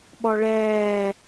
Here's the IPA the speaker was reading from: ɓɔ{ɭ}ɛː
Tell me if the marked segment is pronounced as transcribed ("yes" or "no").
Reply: yes